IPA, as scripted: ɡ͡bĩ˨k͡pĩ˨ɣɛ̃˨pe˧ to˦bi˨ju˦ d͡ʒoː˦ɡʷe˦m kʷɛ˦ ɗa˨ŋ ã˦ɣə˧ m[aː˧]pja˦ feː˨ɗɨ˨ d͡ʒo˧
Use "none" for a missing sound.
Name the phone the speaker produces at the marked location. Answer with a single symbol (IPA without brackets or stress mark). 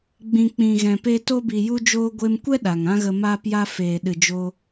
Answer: aː˦